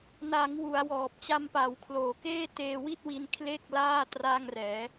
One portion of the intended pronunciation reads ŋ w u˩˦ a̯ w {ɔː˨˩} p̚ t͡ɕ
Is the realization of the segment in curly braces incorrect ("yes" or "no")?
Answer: no